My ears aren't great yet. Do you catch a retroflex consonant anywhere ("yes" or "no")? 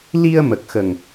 no